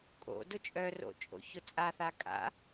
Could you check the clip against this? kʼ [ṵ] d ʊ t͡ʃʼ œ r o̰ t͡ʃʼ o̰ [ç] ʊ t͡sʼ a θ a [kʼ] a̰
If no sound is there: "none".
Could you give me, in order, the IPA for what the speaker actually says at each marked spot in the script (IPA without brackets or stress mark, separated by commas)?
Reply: o̰, ç, kʼ